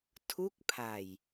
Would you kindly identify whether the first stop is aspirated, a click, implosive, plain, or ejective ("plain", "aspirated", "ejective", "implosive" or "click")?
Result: aspirated